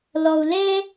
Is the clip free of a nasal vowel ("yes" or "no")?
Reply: yes